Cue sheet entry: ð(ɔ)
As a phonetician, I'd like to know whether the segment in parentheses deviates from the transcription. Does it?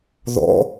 yes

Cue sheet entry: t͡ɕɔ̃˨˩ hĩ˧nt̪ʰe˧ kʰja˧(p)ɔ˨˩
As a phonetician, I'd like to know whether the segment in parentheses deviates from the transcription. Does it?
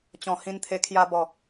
yes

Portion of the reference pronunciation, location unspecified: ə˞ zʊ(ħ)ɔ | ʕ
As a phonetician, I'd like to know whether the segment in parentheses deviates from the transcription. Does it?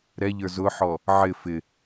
no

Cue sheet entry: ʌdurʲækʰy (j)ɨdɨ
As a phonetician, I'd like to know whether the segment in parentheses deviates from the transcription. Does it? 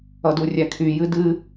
no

